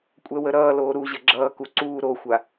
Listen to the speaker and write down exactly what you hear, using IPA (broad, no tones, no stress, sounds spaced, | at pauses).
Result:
kʷʼ ɛ w ə ɾ ʌː l oː ɾ u ʑ ə ɡ͡ǁ ʌː k u ǀ uː ɾ o xʷ a